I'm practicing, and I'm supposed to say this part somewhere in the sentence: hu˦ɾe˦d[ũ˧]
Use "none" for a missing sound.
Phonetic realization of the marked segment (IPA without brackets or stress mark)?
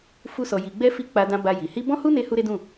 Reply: ũ˦˨